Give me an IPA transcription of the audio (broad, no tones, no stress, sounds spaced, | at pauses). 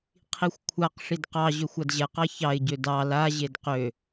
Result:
qʰ i xʷ kʷʰ a q ʂ i d q ɑ ʑ ø xʷ a d ʑ ɛ q ɑ ç ɑ ɪ̯ ɟ ø d ɑ l a ʑ e d q ø